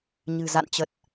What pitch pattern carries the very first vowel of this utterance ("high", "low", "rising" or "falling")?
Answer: low